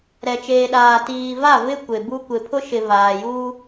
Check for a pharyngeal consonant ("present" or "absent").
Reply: absent